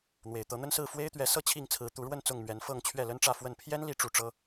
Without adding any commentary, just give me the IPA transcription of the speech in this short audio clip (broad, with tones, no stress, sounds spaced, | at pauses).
n̪ w e˨˩ ɪ̯ t̪ ɤ˨˦ n̪ ə˦ n s ɹ̩˥˨ f w e˦ ɪ̯ t̪ ɥ ɛ˨˦ s ɤ˥˨ t͡ɕʰ i˥˨ ŋ t͡sʰ ɹ̩˨˦ t̪ u˨˦ ɻ w ə˥˨ n t͡s ʊ˥˨ ŋ m ɥ ɛ˨˦ n f ɤ˥˨ ŋ t͡ɕʰ ɥ ɛ˥˨ l ə˦ n ʈ͡ʂ ä˥˨ f w ə˥˨ n pʰ j ɛ˦ n l i˨˦ ʈ͡ʂ u˨˦ ʈ͡ʂ ɤ˦